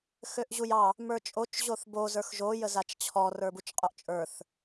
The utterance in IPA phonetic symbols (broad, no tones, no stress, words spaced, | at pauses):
xøʔʑujɑ | mə˞t͡ʃʼot͡ʃ ʑoθbo zə˞xʒo jəzat͡ʃt͡ɕʰɔ rə˞but͡ʃqʼoʔt͡ʃʼə˞θ